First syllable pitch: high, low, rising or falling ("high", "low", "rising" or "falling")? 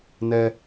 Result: low